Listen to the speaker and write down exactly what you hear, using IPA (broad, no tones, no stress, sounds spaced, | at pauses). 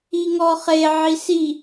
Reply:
i ŋ ɔ χ e ʕ i s i